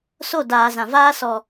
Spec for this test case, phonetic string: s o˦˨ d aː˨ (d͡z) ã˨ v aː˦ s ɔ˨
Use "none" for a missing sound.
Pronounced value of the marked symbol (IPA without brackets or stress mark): z